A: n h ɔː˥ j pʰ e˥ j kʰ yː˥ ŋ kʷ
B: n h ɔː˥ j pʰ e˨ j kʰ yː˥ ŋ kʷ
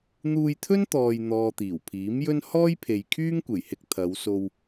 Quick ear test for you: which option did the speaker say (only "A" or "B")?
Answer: B